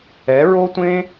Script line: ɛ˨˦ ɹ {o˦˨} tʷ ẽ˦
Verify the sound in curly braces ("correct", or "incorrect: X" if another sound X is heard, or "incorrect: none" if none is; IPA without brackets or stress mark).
incorrect: o˦